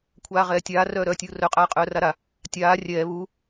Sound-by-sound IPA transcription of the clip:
kʷʰ aː ʁ ɛː tʲ aː r œː ɾ œː tʲ uː r œ qʼ aː qʼ œː r a ɾ a | tʲ aː rʲ ɛː β u

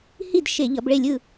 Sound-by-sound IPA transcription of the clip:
h i˥˨ d ʃ e˧˩˧ ʎ ʌ˨˦ b ɭ e˥˨ lʲ ɯ˥˨

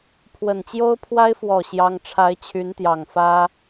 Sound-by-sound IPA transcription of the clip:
pʰ w ə˨˩ n t͡ɕ j o˥ ʊ̯ pʰ w a˥ ɪ̯ f w ɔ˨˩ ɕ j ɑ˥ ŋ ʈ͡ʂʰ a˥ ɪ̯ t͡ɕʰ y˧˥ n t̪ j ɑ˨˩ ŋ f ä˥

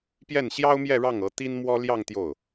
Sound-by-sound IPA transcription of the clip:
p j ɛ˥˩ n ɕ j ɑ˥ ʊ̯ m j ɛ˥˧ ɻ ɑ˥˩ ŋ ɤ˧˥ t̪ i˥ n m w ɔ˥ l j ɑ˥˧ ŋ t̪ j o˥˩ ʊ̯

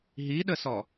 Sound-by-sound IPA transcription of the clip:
ɦ i ɗ ə s ɔ

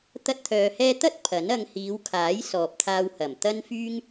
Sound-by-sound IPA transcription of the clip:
t̪ ɐ˥ t̚ t̪ʰ œː˧ h ɛː˥ t̪ ɐ˥ t̚ pʰ ɐ˨˥ n ɐ˧ ŋ h iː˨˧ w kʰ aː˨˥ j s ɔː˨ p̚ t̪ʰ aː˧ w h ɐ˨˩ m t̪ ɐ˥ n f yː˥ ŋ

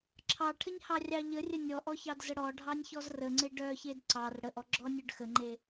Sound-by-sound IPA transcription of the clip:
ǁʰ ɑ ʈʰ ə ɲ h ɑ rʲ ɑ ʎ ə rʲ ə nʲ ɔ ʔ ɔ ç ɑ d z ə ɽ ɔ ɖʱ ɑ nʲ ç ɔ z r ə ŋ͡ǀ e ɖ œ ç e d ǀ ɑ r ɽ ə ʔ ɔ ɡ͡ǁ ɔ nʲ œ ɖ x ə ŋ͡ǃ e

